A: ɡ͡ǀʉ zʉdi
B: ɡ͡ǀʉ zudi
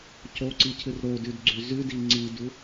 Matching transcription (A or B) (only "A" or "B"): A